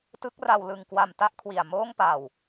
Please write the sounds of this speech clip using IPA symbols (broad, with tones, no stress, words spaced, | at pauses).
tɯ˦˥k̚ra˧w lɯ˧ŋkwa˧m ta˦˥ʔkʰwi˨˩a̯ moː˥˩ŋpa˧w